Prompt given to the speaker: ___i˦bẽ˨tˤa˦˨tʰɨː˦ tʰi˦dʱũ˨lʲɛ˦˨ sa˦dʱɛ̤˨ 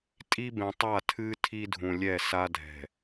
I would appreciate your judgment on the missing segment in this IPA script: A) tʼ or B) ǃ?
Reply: A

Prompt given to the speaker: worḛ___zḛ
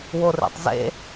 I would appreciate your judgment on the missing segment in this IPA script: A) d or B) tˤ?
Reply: B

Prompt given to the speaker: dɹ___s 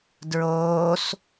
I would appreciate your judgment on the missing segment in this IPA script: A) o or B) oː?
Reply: B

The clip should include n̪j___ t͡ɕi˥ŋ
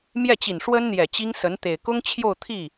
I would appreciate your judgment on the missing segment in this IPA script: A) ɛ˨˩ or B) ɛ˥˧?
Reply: A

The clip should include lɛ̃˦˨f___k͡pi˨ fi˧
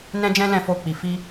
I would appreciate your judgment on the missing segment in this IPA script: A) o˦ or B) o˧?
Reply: B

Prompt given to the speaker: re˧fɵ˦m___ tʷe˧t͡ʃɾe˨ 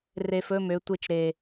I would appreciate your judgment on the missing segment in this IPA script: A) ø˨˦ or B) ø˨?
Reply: A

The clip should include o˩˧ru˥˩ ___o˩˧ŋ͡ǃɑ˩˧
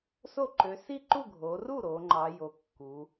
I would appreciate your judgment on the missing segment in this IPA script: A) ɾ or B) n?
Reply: A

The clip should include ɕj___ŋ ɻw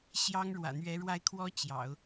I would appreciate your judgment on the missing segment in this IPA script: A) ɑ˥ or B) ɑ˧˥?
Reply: A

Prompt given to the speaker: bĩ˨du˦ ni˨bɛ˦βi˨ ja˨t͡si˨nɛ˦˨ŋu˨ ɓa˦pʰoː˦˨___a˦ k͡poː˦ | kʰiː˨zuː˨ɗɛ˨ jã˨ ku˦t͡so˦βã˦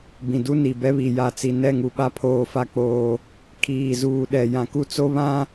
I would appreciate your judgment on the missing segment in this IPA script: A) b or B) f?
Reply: B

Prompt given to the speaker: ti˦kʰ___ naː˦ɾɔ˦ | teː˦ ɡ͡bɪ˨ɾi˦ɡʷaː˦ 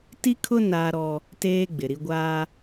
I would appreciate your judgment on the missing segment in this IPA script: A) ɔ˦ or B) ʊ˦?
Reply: B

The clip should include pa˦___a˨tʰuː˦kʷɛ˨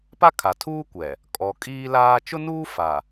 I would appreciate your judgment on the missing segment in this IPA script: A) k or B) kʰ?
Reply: B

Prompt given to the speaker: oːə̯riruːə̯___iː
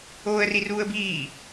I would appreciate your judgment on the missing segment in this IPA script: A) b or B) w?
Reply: A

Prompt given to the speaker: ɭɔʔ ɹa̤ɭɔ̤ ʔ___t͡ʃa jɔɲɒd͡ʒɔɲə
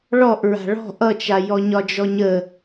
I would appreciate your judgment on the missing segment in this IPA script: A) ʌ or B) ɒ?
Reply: A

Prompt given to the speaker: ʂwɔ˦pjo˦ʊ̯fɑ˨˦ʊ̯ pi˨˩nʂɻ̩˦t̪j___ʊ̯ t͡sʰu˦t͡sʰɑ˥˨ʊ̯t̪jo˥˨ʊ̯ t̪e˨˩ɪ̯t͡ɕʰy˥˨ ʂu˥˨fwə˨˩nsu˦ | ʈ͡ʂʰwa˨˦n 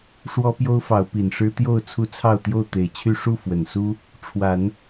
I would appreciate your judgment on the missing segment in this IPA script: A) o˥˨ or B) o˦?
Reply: A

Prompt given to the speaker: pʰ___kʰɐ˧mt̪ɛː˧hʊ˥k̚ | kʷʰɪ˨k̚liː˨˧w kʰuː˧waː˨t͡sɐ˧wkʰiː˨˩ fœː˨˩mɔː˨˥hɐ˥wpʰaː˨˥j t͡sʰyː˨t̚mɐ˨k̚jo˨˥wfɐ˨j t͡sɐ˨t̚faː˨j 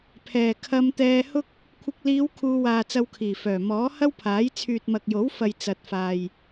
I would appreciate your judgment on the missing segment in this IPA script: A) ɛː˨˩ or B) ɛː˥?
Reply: A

